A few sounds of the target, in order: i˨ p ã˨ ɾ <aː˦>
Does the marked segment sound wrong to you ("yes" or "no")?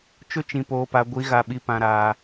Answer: yes